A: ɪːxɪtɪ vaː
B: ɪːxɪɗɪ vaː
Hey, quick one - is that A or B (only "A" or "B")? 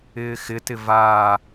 A